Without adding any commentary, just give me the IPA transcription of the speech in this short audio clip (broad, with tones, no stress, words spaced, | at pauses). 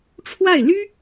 ʈ͡ʂʰwa˥˩ɪ̯ ly˥